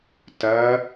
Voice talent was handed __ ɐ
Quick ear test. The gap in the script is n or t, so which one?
t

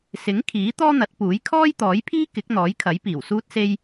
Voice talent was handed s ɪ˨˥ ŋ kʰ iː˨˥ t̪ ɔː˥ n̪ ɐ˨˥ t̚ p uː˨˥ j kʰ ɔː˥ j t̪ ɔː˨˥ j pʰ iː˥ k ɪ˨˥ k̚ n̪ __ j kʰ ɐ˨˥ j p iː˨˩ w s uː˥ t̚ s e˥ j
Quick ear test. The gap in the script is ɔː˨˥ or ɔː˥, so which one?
ɔː˨˥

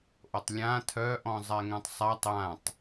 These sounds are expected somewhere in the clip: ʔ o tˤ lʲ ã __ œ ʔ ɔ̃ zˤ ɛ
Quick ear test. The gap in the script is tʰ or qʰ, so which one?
tʰ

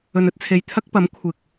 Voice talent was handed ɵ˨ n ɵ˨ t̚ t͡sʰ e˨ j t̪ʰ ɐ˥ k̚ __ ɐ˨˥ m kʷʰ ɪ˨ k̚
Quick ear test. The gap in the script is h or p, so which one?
p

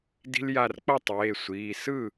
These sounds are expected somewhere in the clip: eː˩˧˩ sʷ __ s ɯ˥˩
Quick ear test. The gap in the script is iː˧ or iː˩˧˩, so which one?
iː˩˧˩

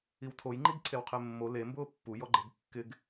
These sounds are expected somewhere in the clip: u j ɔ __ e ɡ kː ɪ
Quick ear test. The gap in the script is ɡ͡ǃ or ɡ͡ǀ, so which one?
ɡ͡ǃ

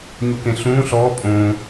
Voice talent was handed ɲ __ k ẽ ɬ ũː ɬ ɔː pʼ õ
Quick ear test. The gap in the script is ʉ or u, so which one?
u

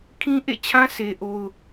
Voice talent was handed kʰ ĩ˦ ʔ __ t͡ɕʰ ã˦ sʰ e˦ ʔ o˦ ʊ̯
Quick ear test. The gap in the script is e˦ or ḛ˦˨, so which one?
ḛ˦˨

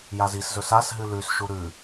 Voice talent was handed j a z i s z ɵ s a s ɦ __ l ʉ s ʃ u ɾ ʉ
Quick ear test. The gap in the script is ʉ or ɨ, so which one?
ɨ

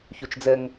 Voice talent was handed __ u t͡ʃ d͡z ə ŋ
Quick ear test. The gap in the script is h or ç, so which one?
ç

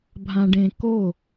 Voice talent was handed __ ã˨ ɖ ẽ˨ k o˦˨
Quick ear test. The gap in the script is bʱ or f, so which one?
bʱ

